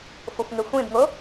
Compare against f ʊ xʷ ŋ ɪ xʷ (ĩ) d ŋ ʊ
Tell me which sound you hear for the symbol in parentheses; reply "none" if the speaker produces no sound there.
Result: ĩ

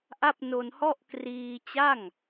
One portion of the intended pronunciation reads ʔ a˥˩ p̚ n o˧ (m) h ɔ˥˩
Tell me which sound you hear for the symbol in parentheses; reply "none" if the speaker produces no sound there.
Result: n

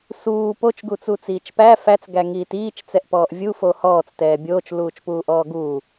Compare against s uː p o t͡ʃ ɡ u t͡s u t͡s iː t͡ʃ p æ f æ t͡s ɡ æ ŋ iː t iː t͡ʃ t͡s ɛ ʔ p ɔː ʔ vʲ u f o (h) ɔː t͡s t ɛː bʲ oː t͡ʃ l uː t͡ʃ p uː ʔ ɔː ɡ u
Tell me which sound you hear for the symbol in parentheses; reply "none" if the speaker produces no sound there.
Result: h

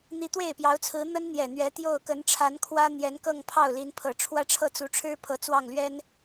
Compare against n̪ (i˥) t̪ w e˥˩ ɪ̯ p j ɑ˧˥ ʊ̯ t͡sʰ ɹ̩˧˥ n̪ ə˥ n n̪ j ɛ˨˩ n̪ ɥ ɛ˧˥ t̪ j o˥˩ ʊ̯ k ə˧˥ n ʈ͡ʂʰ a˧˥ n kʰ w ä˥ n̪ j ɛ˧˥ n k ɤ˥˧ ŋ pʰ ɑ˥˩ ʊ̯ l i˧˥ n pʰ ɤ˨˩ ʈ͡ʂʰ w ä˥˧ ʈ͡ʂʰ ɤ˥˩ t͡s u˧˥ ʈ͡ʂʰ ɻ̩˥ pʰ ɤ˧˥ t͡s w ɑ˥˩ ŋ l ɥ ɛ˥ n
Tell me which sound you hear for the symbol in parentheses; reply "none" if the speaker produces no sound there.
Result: i˧˥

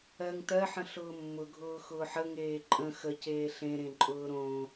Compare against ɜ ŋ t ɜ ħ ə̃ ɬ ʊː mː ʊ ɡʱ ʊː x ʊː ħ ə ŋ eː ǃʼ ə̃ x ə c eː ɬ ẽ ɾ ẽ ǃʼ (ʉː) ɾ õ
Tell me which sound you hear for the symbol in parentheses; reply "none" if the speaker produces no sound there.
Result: ʊː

